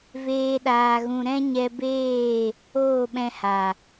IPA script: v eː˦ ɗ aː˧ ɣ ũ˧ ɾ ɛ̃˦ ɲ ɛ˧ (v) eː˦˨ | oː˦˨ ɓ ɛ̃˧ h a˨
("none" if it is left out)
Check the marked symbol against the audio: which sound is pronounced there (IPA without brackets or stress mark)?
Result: b